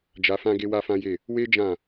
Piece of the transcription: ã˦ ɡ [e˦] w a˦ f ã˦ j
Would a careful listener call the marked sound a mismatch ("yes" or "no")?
no